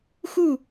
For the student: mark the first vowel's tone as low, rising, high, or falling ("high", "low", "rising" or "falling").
falling